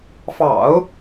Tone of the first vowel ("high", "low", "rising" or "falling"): low